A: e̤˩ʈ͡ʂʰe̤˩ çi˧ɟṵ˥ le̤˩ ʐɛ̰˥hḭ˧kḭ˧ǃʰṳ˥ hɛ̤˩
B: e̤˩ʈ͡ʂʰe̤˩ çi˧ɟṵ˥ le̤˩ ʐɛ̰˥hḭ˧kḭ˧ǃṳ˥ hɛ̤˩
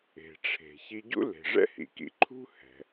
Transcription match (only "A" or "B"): A